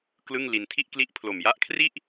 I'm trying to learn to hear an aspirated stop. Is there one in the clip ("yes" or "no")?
yes